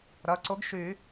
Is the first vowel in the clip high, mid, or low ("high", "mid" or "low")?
low